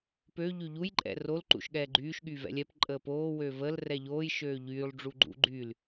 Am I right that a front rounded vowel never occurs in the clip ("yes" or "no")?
no